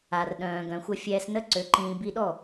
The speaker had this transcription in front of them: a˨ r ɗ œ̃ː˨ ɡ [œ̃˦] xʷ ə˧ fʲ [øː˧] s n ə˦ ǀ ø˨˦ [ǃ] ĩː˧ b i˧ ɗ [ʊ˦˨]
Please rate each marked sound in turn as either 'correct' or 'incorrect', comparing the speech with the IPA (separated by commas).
incorrect, incorrect, correct, incorrect